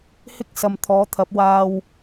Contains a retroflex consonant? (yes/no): no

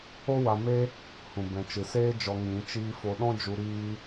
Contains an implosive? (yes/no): yes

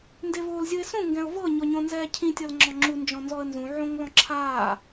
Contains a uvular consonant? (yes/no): no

